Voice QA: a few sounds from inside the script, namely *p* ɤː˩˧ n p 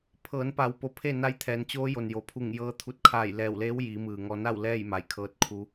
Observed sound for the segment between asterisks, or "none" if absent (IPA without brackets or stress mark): pʰ